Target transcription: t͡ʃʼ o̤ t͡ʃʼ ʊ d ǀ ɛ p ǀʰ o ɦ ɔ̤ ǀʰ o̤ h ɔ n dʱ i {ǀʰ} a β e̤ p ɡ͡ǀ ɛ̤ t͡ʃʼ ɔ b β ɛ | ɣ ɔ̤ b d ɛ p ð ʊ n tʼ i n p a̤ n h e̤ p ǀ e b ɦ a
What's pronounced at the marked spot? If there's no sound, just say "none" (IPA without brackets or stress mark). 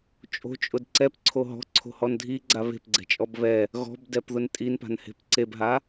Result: ɡ͡ǀ